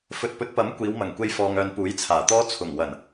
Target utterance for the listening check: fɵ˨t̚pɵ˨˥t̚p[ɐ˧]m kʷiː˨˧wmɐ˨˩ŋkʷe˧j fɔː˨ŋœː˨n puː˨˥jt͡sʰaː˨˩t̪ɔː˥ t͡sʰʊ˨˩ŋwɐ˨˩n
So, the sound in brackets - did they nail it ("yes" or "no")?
no